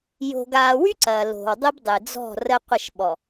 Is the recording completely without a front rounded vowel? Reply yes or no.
no